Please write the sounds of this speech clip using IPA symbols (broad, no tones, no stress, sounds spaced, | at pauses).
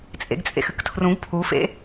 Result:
t͡sʼ ḛ ɡ t͡sʼ ḛ x ɨ k tʰ r ũ ɡ pʰ u f ḛ